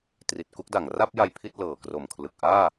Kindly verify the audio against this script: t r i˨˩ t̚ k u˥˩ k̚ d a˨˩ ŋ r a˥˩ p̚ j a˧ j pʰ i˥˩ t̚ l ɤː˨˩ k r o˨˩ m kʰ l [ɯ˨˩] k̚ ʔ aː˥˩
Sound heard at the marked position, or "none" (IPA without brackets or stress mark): ɯ˨˩